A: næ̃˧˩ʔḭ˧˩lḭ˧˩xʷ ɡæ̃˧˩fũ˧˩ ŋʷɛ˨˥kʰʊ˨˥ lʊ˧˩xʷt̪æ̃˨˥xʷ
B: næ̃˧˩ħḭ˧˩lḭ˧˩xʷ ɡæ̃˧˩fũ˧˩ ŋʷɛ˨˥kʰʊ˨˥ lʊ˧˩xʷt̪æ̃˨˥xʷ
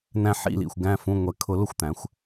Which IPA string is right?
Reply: B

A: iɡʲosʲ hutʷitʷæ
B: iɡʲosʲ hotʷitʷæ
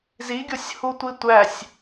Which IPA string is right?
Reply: A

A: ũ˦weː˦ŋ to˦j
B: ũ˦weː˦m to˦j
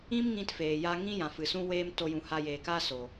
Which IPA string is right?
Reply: B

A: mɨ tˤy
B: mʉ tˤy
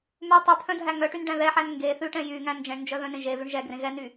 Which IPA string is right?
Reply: B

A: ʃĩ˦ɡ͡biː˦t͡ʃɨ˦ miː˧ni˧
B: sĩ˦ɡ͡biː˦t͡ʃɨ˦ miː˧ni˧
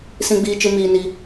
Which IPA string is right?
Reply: B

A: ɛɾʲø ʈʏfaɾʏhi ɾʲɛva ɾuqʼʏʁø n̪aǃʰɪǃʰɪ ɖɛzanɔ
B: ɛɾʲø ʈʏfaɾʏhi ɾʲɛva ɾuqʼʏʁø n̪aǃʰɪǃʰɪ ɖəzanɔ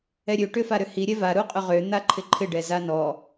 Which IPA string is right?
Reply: A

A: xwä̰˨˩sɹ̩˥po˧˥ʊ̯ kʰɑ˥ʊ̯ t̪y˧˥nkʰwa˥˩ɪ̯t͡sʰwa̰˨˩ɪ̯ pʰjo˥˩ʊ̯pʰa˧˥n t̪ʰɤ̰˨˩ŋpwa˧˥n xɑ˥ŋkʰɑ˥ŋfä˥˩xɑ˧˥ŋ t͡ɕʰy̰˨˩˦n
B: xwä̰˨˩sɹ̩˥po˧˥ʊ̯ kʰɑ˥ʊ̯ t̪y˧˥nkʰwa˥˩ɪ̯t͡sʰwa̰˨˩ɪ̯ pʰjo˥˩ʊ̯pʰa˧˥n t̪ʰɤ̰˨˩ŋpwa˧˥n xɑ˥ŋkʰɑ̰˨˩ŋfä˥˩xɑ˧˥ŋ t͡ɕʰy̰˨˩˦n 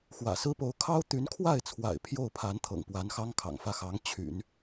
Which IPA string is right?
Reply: B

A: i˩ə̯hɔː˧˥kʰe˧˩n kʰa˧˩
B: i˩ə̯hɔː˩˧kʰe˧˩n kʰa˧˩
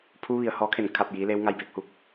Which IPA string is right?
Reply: A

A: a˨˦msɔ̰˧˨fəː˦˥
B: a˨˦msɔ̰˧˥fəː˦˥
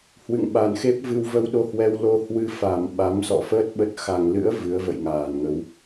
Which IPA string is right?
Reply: A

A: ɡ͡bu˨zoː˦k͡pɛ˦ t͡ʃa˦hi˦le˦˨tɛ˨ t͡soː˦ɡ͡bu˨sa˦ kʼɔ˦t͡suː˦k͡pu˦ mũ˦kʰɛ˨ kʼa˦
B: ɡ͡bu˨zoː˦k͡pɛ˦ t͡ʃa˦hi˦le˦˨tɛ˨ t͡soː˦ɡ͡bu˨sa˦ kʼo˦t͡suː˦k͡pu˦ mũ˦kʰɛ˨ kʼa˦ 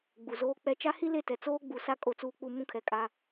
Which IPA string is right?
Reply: B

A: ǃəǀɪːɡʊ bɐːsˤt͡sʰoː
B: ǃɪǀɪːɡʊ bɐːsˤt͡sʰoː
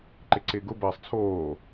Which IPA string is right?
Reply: B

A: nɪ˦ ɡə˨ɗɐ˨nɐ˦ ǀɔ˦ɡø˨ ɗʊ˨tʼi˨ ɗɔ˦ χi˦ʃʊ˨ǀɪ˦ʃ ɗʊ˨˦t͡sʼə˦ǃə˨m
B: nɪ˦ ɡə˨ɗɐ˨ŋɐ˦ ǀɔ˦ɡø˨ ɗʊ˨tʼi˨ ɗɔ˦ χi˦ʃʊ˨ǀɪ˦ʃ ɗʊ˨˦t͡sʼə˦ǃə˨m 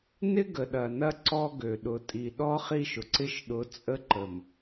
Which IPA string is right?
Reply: A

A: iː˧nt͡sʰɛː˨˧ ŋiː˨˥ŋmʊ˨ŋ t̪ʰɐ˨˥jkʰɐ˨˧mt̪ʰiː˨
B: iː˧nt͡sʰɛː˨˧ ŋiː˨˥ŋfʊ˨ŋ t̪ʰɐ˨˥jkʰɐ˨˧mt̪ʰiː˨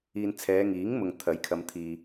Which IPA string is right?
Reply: A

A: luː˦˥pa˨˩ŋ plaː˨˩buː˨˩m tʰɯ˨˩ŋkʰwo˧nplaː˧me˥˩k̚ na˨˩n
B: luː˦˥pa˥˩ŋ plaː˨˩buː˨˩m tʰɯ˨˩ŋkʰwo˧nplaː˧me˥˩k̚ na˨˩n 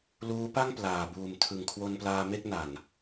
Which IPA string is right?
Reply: B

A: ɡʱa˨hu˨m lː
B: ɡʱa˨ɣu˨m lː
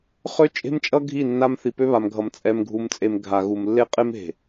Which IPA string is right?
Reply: B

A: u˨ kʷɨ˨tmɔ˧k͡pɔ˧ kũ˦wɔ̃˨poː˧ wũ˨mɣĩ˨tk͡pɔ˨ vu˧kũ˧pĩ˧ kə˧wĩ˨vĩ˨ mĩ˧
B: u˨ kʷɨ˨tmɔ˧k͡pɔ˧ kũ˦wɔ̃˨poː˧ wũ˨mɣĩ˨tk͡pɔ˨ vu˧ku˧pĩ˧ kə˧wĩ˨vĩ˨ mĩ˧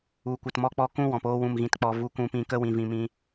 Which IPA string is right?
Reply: A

